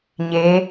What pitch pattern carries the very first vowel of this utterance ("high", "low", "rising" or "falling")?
rising